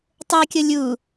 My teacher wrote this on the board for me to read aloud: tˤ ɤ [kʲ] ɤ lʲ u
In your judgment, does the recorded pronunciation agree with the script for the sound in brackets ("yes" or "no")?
yes